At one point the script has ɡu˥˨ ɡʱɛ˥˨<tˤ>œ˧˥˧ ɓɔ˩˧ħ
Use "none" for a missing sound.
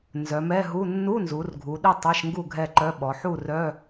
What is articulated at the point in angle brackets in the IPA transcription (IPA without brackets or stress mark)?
ǃ